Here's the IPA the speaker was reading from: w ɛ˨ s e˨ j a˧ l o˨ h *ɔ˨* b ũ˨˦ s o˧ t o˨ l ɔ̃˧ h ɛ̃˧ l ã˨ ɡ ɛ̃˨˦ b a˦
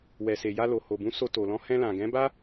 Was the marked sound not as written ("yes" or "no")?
yes